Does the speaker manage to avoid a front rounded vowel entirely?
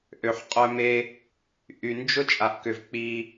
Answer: no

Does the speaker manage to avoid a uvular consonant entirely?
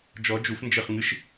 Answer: no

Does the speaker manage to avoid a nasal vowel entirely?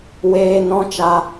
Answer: no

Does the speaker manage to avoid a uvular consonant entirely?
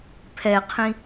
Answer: no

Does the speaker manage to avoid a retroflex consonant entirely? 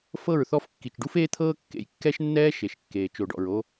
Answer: no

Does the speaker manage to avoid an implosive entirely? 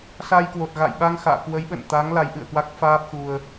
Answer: no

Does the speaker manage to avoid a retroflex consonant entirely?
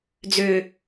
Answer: yes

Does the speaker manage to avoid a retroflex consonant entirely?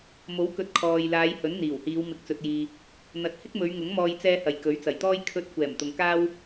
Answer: yes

